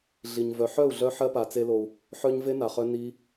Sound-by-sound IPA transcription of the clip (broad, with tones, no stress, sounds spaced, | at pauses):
ɮ i˨ ɲ v œ˨ ħ œ˦˨ u̯ ɮ œ˧ ħ ɜ˦ p a˨ t͡s e˧ l o˨ u̯ | ħ œ˧ ɲ v e˦ n a˨ χ œ˧ n i˧